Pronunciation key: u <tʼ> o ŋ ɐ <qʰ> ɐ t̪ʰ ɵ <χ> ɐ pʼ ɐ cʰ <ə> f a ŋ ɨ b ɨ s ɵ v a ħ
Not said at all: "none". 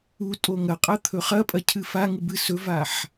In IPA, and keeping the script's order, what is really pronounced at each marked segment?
tʼ, qʼ, χ, ɨ

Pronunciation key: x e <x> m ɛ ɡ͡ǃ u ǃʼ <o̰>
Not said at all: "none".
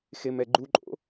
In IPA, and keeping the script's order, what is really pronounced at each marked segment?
none, o̰

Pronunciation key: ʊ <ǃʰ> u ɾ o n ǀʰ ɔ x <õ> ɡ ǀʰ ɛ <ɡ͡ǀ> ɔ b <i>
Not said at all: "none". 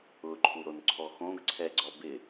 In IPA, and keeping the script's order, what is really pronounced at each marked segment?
ǃʰ, õ, ɡ͡ǀ, ɪ

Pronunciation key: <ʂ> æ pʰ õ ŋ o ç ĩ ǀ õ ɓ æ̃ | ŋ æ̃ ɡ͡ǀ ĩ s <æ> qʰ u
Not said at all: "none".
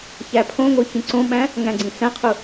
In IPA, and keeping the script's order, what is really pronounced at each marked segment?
ç, æ̃

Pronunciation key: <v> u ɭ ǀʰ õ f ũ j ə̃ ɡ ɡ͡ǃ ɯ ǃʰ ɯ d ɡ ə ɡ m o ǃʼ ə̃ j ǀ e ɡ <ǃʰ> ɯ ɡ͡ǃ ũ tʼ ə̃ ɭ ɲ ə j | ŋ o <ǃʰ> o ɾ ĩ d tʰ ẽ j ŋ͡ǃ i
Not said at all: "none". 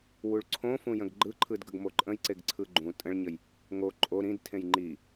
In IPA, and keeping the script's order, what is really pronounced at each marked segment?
w, ǀʰ, ǃʼ

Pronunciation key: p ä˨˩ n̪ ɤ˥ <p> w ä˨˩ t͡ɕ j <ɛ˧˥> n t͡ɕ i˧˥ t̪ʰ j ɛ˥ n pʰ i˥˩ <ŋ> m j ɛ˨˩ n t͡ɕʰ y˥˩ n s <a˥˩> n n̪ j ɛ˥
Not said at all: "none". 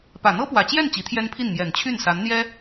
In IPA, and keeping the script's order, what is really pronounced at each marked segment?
p, ɛ˥˩, n, a˧˥

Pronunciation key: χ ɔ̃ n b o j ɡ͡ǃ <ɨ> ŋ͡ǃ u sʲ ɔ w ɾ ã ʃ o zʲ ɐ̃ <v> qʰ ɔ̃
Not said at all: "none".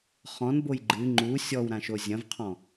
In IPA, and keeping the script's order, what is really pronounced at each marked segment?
ɨ, v

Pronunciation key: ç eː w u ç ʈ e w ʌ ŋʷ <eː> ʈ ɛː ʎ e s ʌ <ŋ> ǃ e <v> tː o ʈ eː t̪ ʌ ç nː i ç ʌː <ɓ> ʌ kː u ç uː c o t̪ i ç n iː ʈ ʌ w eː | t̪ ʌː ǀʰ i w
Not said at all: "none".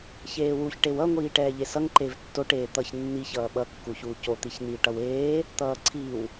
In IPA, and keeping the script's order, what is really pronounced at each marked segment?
iː, ŋ, v, ɓ

